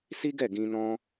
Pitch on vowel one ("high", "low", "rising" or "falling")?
high